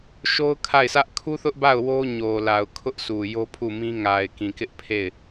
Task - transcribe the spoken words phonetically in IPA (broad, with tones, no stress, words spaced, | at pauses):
ʃo˦ʊ̯kʰa˦˨ɪ̯sä˦ʔ kʰu˦θʊ˦ʔba˦˨ʊ̯ wo˦ ɲo˨ la˨ʊ̯ kʰʊ˦ʔsu˨ jo˦pʰu˦˨mĩ˦ ŋa˨ɪ̯kĩ˨kɪ˦ʔ pʰe˦˨ɪ̯